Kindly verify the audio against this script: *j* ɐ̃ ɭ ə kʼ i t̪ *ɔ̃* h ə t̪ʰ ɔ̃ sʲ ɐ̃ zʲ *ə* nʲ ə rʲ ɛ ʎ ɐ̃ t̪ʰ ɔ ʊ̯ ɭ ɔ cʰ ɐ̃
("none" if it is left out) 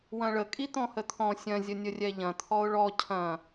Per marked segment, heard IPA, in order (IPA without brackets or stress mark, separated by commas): w, ɔ̃, ə